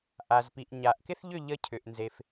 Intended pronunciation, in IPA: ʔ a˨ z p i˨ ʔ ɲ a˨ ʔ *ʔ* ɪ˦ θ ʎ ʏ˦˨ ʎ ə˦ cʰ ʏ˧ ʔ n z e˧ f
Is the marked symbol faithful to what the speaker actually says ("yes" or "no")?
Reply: no